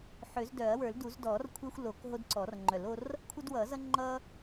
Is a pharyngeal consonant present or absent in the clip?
present